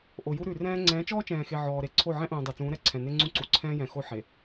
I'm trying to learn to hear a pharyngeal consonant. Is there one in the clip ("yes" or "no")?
yes